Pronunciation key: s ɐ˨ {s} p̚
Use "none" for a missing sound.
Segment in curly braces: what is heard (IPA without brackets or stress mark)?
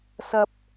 none